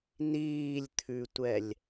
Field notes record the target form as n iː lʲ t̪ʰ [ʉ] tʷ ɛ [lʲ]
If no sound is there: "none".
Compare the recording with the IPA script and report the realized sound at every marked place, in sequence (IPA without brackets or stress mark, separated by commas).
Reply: ʉ, lʲ